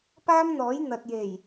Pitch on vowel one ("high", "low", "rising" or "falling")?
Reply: high